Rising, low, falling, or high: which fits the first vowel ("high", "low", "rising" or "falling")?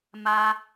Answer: high